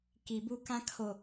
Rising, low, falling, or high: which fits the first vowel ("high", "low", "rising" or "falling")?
low